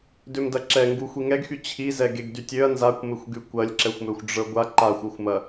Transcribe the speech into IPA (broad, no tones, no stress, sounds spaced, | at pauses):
d ø m d ɐ ǁ ɛ ŋ ɡ u xʷ i ŋ ɛ ɡ x y t͡ɕʰ i z ɛ ɡ e ɡ d y tʲ ø ɐ̯ n z a kʷ m e xʷ ɡ y kʷ ɐ lʲ ǁ ɛ xʷ m ø xʷ ɖ͡ʐ ə˞ ɡʷ a ǃ a xʷ ə˞ xʷ m ɐ